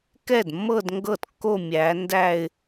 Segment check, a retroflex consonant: absent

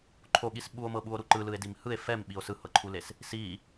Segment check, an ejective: absent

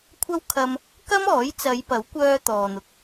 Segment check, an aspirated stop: present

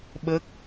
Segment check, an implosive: present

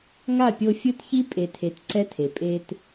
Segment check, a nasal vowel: absent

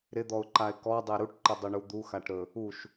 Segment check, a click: present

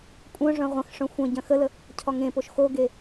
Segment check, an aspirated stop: present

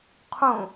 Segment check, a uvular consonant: present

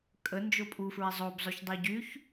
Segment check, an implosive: absent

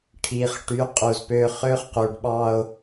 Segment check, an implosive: present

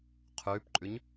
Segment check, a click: present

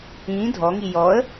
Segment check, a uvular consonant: absent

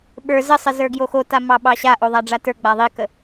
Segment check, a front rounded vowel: absent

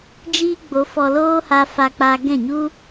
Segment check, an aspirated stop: absent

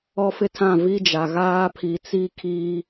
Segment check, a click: absent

